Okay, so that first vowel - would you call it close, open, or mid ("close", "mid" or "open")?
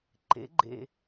mid